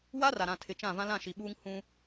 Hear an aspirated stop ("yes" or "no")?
yes